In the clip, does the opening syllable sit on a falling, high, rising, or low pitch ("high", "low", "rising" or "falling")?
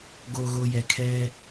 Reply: low